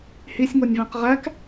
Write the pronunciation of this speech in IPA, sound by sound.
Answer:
h i sʲ ŋ o nʲ v æ̃ q ʁ æ k

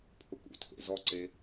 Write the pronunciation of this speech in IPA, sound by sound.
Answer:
pʰ ʊ k ṵ tʰ ḛ z ɔ ǀ e

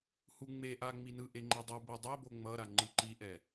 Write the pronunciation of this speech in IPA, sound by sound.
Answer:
h u ŋ͡m e ʔ a ŋ͡m i n ɯ ʔ e ŋ͡ǃ ɛ dˤ ɯ b e dˤ o b o ŋ͡m ʌ ɾ a ŋ͡ǃ ɯ ǃ i ʔ ɛ

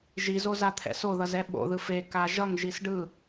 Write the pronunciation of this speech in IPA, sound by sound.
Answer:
ʒ i z o z a t̪ʰ ɛ̰ s o ð ʌ z ɛ ɓ o̰ ð ɯ f e k a ʒ ʌ ŋ ʒ i s ɖ ɯ

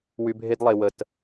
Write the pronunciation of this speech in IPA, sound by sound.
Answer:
w y˨ bʱ e˦ d lˠ e˨ w ə˨ t

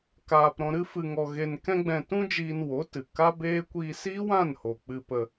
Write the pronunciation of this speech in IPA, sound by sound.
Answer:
k aː˧ p ɾ ɔ̃˧ ɾ ɨ˦ f ɨ˧ ŋ ɔ˧ ɣ e˧ n k ɛ̃˦ ɡ͡b ɛ̃˧ t ũ˦ d͡ʒ iː˧ n w o˨˦ t ɨ˨ k a˦ b eː˦ kʷ i˧ s i˦ w ã˦˨ n h o˨ k͡p ɨ˧ p ə˧

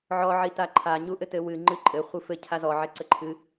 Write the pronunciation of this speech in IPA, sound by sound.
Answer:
ʕ ɔ ʕ i t a ǃʰ a ɲ u ʔ ɘ t ɘ w ɨ ŋ͡ǃ ɨ ǃʼ ɘ χʷ ɨ f ɘ cʰ a z ɔ ʕ ɛ ǀ ɘ ǃʰ ɨ

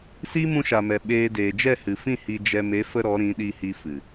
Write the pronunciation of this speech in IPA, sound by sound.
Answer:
s iː˦ m ũ˧ ʃ a˨ m ɛ˨ ɓ eː˧ d eː˨ d͡ʒ ɛ˦˨ h ɨ˨ f ĩ˦˨ h i˧ d͡ʒ ɛ˧ m e˨˦ f ə˧ ɾ ɔ˨˦ ɾ ĩ˨˦ ɗ i˧ h i˧ f ɨ˨

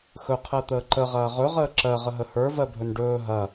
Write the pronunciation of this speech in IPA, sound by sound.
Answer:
x ɵ qʰ ɜ t̪ əː ǃ ə ʁ ɐː ʁ ɵ ʁ əː ǁ ɜ ʁ ə ɦ ə h ə˞ v ɜ bʱ ɵ n ɖ ɵː ɦ ɐ

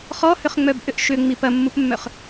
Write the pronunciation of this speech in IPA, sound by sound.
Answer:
χ ɔ h ʏ χ ŋ͡m œ b ʔ ʏ ʔ ʃ ʏ ŋ͡m i p ɐ mː u p mː œ χ

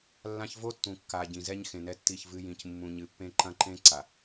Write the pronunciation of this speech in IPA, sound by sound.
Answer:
lː ã˦ ç v o˦ tː ũ˨ kː a˨ ɟ ĩ˨ z ɛ˦ ɲ x ẽ˨ n ɛ˦ tː i˦˨ ç v ɨ˦ j ĩ˨ c mː ũ˨ ɲ ɨ˨ pː ẽ˦ ǃ ɐ̃˦ ǃ ẽ˦ ǀ a˨

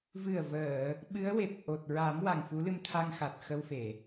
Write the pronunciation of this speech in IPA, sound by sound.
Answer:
v ɨ˨˩ ə̯ v əː˨˩˨ | ɓ ɨ˧˥ ə̯ w e˨˩ p̚ ʔ o˨˩ t̚ ɹ a˨˩˦ m w a˨˩ ŋ f u˧˥ l ɨ˧ m t̪ʰ a˧ ŋ x a˨˩ t̚ x ə˧ w f e˨˩˨

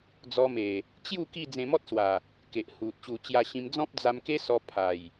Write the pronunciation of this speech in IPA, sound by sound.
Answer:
d͡z ɔ˧ m e˨˩ | t͡ɕ j u˥˧ k i˥˧ d͡z ẽ˧ m ɔ˦ t̚ s w a˨˩ | k e˨ ʔ h u˨ t̚ ɕ u˧ t͡ɕ j a˧ ɕ ĩ˧ m d͡z ɔ̃˦ p̚ d͡z a˧ m k e˦ s ɔ˧ pʰ a˨˩ j

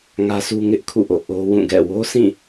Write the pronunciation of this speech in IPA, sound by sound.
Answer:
ŋ ä˦ sʰ u˦ ŋ ɪ˦ ʔ kʰ ṵ˦˨ ʔ o̰˦˨ ʔ o˦ w ũ˦˨ ɡ ɛ̰˦˨ w o˦ s ĩ˦˨

